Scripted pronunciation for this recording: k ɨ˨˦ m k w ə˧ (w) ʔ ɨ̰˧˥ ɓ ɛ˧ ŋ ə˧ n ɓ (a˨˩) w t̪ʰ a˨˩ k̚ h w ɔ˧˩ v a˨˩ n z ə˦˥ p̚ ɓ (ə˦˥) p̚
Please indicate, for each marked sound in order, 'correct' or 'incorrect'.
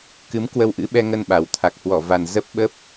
correct, correct, correct

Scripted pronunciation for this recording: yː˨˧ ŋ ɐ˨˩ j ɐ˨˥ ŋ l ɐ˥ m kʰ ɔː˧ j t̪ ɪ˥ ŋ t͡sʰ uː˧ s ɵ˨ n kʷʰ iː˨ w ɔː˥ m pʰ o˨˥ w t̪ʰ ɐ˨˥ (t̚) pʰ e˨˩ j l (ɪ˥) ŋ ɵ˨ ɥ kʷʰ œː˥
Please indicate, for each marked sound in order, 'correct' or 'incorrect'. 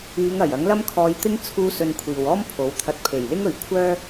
correct, correct

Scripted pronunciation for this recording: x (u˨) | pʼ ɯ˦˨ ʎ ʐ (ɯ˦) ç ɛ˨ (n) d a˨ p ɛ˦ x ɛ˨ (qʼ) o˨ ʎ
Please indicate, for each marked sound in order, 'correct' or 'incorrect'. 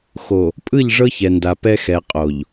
incorrect: o˨, incorrect: ɤ˦, correct, correct

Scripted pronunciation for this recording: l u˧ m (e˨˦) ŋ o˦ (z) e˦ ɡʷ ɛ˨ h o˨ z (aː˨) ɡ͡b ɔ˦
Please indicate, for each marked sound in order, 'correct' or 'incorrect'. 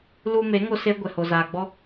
correct, incorrect: s, correct

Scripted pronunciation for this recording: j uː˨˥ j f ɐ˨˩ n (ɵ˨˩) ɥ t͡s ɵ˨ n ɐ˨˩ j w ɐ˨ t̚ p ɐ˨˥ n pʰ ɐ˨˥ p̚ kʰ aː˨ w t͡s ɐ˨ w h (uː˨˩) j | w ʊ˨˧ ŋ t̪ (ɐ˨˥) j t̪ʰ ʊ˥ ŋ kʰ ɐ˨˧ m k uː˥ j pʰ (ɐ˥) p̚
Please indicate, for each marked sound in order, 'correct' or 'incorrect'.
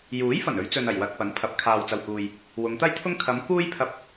incorrect: ɵ˨˧, incorrect: uː˨, incorrect: ɐ˥, incorrect: ɐ˧

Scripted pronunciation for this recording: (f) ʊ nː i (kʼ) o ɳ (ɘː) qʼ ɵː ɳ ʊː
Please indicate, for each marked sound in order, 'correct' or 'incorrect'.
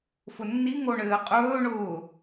correct, incorrect: ŋ, correct

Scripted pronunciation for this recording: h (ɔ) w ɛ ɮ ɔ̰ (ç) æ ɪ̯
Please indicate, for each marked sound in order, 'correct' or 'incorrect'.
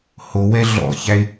incorrect: o, correct

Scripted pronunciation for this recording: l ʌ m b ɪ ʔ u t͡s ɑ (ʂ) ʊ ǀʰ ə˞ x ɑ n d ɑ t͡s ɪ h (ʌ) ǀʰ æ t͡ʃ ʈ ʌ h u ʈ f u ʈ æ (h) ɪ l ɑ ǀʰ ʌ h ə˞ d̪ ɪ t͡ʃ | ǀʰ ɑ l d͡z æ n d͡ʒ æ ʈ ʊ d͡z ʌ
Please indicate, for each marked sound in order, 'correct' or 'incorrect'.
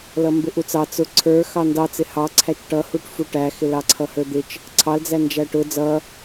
incorrect: t͡s, incorrect: ɑ, incorrect: x

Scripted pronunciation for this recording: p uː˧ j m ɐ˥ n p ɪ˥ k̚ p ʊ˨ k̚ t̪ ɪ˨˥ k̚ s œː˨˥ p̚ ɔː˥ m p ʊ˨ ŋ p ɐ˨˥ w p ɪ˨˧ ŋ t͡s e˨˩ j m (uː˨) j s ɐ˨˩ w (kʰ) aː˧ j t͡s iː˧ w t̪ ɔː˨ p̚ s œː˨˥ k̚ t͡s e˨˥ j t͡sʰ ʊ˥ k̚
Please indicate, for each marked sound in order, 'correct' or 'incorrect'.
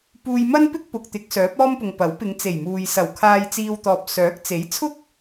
correct, correct

